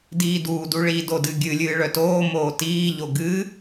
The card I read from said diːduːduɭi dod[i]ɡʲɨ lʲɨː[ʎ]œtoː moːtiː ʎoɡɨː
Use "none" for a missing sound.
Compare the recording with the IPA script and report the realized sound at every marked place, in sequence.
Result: ɨ, ɭ

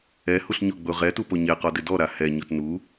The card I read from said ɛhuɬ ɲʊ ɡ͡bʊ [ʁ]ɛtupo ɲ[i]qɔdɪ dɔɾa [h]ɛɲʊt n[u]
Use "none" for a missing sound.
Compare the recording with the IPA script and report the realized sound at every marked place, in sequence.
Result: ʁ, e, h, u

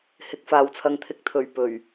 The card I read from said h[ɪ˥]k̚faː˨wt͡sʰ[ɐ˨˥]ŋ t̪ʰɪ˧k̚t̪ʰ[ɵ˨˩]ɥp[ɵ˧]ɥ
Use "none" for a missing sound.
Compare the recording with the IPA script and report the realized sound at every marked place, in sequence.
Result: ɪ˨˥, ɐ˧, ɵ˨˩, ɵ˨˩

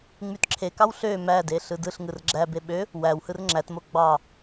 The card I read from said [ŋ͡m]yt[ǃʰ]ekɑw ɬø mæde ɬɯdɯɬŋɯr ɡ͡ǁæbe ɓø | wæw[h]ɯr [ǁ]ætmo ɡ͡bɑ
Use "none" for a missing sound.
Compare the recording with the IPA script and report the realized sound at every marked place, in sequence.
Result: ŋ͡m, ǁʰ, h, ŋ͡ǁ

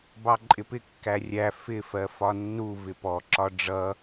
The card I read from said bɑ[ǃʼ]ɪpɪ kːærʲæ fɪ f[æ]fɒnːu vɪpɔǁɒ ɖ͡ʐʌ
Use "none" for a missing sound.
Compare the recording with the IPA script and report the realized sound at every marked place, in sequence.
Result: ǃʼ, ɜ

